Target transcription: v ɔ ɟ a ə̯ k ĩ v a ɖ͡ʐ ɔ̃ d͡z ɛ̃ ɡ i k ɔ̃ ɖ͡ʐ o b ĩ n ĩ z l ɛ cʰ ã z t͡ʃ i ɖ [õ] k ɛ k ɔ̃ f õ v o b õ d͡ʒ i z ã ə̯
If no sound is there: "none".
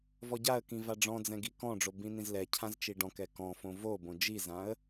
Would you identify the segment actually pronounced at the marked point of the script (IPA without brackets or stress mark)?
ɔ̃